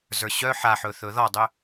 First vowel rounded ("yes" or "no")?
no